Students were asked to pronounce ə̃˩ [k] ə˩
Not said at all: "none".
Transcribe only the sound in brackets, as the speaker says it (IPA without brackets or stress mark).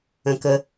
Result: k